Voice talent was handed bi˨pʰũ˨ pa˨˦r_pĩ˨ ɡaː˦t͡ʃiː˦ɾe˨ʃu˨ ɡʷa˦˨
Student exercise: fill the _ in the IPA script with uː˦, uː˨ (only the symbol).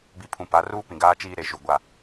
uː˦